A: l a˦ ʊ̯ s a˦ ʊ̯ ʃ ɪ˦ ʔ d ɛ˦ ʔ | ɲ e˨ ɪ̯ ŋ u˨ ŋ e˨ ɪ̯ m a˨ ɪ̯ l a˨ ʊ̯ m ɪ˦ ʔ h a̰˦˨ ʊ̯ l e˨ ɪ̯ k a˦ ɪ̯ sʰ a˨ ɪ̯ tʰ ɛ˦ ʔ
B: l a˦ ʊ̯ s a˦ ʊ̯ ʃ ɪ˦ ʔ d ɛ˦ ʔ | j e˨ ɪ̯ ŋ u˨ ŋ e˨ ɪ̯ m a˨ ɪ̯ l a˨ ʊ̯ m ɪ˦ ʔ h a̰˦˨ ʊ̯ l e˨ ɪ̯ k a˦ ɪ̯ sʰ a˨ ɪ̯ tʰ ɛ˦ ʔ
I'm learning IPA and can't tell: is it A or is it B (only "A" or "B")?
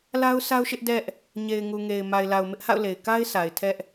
A